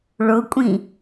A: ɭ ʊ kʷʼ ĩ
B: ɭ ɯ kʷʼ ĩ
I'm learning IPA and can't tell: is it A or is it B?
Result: A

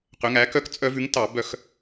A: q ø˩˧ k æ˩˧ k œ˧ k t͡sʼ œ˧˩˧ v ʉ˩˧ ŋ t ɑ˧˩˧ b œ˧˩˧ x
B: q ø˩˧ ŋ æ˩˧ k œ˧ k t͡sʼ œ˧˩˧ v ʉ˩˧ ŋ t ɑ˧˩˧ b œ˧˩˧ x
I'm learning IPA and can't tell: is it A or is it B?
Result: B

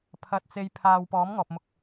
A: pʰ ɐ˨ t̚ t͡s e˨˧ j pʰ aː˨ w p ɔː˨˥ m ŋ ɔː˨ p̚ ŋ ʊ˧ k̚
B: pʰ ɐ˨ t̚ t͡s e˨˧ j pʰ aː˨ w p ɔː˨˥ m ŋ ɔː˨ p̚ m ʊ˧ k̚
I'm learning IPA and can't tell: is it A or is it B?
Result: B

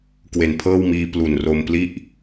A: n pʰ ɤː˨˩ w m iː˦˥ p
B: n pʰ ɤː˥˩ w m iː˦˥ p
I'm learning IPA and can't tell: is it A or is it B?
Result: B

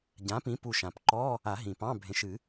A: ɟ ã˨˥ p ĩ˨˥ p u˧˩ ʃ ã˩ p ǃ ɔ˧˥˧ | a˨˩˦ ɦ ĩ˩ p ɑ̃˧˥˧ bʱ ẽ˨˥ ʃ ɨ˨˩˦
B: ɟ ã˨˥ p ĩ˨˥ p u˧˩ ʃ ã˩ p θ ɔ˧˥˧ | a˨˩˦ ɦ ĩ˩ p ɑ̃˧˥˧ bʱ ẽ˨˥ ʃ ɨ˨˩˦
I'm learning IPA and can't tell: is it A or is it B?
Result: A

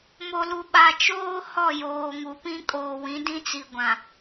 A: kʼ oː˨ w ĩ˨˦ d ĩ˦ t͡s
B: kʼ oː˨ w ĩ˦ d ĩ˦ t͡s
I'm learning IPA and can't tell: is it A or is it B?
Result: A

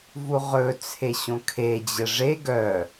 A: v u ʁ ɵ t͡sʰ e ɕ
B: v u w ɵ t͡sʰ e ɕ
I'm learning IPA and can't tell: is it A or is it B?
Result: A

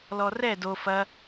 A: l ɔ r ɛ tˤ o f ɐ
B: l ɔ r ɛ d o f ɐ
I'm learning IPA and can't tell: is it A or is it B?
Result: B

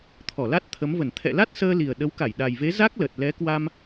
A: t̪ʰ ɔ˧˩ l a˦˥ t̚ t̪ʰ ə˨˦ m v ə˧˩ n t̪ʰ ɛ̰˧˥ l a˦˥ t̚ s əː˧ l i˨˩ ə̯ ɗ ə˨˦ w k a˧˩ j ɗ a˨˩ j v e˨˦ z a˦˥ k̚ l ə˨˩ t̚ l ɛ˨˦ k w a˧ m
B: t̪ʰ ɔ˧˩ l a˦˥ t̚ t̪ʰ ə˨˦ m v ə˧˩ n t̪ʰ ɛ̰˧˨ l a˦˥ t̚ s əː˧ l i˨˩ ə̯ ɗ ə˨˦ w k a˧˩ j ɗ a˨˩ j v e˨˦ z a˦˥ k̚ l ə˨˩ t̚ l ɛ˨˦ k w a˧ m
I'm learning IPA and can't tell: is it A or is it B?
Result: B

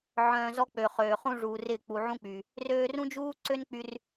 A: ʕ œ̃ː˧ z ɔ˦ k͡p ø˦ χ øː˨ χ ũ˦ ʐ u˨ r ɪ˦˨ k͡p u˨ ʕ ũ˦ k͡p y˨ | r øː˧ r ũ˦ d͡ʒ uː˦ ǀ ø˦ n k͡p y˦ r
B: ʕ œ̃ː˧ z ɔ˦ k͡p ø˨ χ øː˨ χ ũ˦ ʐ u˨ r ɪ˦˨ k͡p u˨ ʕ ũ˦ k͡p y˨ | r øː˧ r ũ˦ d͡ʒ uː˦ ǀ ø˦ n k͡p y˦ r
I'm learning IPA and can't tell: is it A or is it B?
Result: B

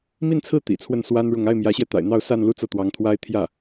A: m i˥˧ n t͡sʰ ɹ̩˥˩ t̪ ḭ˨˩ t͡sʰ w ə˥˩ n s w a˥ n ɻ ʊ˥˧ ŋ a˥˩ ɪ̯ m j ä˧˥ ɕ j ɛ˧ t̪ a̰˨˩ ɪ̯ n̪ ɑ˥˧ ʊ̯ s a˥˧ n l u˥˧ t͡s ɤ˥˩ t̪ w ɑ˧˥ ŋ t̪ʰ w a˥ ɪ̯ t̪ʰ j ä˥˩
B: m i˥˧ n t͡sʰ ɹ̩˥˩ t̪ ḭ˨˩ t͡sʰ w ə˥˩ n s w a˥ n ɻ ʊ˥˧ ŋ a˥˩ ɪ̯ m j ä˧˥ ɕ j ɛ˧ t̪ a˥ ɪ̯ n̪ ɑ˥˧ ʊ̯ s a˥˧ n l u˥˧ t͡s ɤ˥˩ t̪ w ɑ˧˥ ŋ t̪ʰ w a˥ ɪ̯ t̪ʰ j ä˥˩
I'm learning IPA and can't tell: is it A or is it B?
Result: A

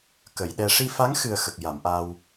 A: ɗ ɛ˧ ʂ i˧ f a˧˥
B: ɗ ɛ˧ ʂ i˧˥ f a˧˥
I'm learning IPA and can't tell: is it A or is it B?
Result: A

